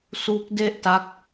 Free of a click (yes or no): yes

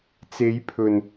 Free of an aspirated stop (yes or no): no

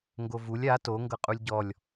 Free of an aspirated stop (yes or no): yes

